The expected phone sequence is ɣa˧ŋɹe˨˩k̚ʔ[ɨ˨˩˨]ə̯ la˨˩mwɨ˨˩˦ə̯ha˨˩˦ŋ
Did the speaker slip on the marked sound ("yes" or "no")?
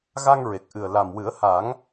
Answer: yes